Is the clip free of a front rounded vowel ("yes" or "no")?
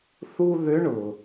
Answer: no